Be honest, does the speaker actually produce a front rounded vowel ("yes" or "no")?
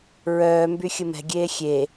yes